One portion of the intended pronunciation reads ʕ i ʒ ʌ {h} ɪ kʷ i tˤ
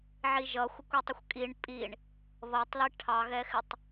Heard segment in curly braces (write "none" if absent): xʷ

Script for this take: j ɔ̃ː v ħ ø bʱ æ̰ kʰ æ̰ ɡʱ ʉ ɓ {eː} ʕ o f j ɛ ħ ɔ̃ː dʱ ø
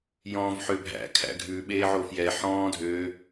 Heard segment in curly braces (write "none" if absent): eː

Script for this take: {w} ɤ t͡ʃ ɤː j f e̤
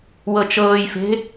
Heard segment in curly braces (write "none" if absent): w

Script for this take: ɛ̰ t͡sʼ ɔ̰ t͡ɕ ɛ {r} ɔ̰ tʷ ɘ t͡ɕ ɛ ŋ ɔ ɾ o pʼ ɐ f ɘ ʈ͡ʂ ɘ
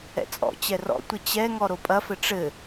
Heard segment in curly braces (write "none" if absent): r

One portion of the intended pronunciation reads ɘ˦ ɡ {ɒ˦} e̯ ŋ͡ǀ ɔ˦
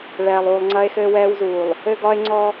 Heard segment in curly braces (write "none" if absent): ɒ˦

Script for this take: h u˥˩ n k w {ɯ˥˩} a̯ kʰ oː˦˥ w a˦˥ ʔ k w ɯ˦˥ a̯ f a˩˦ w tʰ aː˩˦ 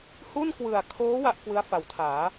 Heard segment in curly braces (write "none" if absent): ɯ˨˩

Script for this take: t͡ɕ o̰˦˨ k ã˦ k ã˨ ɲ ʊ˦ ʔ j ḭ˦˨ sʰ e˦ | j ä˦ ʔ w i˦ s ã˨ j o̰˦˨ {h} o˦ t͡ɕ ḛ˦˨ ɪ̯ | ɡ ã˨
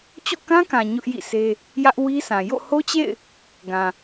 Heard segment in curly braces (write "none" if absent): h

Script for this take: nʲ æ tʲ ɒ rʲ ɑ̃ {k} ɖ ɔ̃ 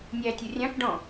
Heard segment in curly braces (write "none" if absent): k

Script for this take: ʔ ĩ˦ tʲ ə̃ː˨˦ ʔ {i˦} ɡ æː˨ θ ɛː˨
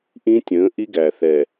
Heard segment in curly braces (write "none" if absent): i˦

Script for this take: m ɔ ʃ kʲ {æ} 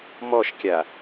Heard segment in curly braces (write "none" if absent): a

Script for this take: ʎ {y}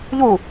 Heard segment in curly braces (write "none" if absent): u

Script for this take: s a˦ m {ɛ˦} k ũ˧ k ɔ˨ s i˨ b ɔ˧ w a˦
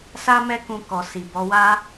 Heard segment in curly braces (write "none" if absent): ɛ˦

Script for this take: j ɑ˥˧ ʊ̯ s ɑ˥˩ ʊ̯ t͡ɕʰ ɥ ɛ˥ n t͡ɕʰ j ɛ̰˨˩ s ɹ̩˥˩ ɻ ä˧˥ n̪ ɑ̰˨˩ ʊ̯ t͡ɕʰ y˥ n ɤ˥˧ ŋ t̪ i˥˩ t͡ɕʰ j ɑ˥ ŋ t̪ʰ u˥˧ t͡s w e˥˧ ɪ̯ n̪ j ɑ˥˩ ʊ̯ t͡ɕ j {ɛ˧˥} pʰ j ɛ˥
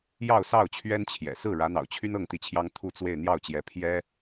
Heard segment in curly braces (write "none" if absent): ɛ˧˥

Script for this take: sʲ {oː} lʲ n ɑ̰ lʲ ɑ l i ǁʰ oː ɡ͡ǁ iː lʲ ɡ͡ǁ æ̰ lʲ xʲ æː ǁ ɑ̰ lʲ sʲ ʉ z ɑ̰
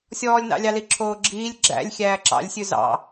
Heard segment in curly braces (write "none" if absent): ɔː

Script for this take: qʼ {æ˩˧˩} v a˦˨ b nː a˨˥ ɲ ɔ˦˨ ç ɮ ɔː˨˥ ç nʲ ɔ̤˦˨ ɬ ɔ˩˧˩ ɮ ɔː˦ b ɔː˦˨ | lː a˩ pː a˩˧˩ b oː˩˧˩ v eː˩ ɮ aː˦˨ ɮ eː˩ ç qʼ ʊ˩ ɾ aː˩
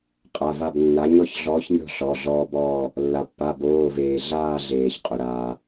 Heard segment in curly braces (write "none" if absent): a˩˧˩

